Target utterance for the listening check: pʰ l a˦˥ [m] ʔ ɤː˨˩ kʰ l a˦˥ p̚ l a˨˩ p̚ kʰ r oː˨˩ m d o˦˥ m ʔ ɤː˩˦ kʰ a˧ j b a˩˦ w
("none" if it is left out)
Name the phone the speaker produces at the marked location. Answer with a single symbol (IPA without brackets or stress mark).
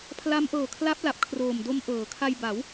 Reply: m